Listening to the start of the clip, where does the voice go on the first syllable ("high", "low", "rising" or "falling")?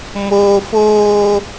high